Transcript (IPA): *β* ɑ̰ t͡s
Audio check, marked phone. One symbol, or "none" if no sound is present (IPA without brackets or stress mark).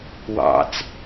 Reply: w